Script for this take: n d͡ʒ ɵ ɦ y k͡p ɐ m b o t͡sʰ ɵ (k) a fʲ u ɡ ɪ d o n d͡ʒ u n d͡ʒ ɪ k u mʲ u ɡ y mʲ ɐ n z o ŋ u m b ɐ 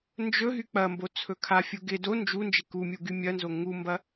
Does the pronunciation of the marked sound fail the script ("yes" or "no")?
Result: yes